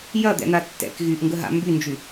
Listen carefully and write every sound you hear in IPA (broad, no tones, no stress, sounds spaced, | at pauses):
j ɐ d̪ ɛ̰ n̪ a tː ɛ̰ k ɣ y ʔ ŋ ɡ ə ɦ a̰ m b y n d͡ʒ y